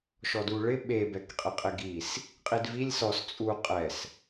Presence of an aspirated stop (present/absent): absent